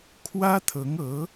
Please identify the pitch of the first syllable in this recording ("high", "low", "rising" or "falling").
high